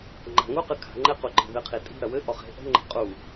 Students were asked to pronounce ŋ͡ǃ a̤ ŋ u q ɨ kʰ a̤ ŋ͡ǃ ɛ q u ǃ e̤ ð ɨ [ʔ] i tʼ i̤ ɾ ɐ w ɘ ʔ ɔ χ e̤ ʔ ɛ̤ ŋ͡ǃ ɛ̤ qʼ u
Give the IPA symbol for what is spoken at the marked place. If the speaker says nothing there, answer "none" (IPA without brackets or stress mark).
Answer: qʰ